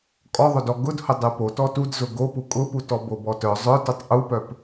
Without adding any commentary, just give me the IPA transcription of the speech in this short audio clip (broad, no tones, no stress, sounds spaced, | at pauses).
kʼ ɔ ðˤ o d ɔ ɡ ʊ d h ʊ dˤ u p o t ɔ t u d z ʊ ɡ o p u kʼ ʊ p u t ɔ b o b ɔ t œ zˤ œ t u tˤ ʔ u p œ p